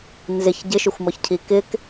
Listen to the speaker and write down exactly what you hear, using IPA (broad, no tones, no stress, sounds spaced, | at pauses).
n z ɪ ç ɟ ɪ ʃ ʏ xʷ m ɔ ç cʰ i k ɪ k